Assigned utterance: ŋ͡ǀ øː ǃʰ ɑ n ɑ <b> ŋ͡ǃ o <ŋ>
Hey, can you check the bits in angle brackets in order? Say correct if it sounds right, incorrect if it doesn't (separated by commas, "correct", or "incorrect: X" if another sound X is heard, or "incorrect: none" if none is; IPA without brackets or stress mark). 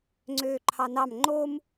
incorrect: m, incorrect: m